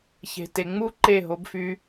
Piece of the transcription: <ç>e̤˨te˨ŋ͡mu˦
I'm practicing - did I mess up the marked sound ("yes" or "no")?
no